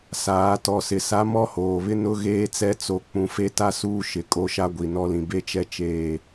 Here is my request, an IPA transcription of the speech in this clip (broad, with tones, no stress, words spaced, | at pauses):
saː˨˦ tɔ˨sɪ˨sa˨˦ mɔ˦hoː˨βɪ˦ nʊ˦ ɣeː˦t͡sɛ˦ t͡so˨k͡pũ˨ fe˦ta˦ suː˦ʃɪ˨ kʼo˦ʃa˦ɡʷi˨ nɔ˦lĩ˨ be˦t͡ʃɛ˦t͡ʃeː˦˨